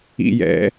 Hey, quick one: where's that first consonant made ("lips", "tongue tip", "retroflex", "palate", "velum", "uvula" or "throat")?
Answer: palate